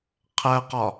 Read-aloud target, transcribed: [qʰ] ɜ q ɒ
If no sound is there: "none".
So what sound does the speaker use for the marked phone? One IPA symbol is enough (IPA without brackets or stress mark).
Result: qʰ